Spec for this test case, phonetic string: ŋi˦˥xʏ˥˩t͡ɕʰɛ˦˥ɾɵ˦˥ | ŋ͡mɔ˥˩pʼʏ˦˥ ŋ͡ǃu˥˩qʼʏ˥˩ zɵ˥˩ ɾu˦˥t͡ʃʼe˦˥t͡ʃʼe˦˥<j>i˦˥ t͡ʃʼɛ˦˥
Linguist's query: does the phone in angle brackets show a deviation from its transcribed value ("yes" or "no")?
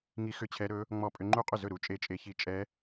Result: yes